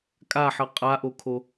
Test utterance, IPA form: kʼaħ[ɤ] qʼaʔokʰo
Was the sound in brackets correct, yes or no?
yes